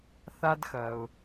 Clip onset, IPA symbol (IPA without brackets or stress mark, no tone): θ